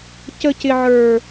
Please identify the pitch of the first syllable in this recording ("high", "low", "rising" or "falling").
high